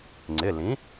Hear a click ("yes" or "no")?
yes